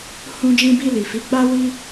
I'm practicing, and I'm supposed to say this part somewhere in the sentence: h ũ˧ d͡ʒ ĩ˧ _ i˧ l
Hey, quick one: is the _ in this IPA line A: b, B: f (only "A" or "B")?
A